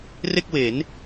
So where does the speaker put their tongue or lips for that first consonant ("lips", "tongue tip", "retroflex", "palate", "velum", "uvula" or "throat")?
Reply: tongue tip